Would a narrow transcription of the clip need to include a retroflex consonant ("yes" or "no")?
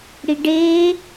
yes